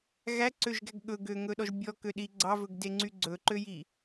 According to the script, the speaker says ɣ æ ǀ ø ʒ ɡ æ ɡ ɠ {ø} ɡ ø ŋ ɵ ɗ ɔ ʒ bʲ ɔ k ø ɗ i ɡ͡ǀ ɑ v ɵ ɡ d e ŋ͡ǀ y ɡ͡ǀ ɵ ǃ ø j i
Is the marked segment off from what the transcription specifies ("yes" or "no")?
yes